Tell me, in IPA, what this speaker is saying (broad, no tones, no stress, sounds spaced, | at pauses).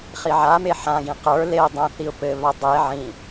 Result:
χ i ʕ a m e ħ ã ɡ ĩ q ə˞ l e ʊ̯ dˤ ã θ i ʊ̯ p ɘ β a dˤ e ʕ ĩ